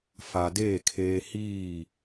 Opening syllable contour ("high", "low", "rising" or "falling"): low